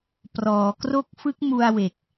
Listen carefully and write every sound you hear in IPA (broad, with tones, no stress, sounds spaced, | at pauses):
p r ɔː˩˦ k r o˦˥ k̚ f ɯ˦˥ k̚ m u˧ a̯ w e˨˩ k̚